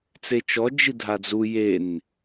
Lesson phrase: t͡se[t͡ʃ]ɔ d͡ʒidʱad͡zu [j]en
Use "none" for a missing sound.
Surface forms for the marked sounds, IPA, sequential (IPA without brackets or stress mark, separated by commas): t͡ʃ, j